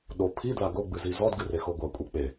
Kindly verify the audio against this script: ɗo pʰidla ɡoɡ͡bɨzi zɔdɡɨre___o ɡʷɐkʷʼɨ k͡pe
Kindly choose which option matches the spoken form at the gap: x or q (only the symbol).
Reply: x